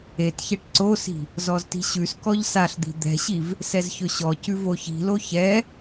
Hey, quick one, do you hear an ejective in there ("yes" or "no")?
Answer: no